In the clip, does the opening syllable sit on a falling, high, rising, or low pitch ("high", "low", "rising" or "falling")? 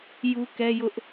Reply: high